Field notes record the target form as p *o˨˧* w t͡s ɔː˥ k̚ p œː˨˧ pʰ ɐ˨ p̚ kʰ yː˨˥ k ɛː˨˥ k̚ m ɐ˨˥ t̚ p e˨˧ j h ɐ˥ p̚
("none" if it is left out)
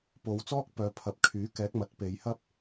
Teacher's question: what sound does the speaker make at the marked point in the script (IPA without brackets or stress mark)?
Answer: o˨˧